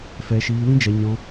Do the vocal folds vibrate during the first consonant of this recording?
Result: no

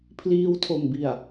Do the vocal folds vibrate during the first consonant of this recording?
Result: no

